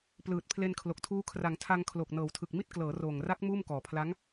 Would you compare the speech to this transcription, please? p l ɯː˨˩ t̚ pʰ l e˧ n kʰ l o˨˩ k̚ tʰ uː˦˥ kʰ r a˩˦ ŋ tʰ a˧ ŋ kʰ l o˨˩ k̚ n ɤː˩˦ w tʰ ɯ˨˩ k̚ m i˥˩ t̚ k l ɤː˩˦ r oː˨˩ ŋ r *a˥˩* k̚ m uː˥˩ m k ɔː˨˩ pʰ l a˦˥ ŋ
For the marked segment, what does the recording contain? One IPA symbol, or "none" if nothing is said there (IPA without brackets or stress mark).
a˦˥